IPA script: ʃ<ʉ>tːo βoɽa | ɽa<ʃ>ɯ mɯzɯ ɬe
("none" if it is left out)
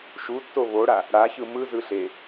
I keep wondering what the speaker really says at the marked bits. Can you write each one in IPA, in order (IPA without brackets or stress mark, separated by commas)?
u, ç